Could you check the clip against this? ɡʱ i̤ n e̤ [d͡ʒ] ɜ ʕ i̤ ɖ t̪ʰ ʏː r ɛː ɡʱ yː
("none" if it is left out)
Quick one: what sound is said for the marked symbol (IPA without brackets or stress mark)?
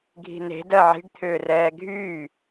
d